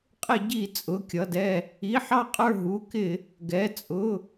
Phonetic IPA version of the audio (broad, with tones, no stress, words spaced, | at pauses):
qʼɪ˧˩˧ɟi˧˩˧ t͡sʼʊ˩˧˩kʲʌ˩˧˩dɛ˧˩ | i˩˧˩ħɑ˧˩qʼə˞˧˩ ɦu˩˧˩kɪ˧˩˧ | ɡɛ˩˧˩ t͡sʼʊ˩˧˩